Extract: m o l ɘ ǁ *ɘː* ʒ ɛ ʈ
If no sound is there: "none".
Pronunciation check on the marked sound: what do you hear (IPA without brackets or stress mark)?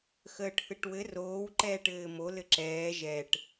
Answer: ɛː